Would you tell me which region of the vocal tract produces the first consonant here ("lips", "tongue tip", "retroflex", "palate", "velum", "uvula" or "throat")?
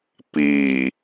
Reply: lips